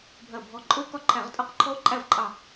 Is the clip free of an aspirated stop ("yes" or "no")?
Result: no